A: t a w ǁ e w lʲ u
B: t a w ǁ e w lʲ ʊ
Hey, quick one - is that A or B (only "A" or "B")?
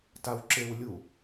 A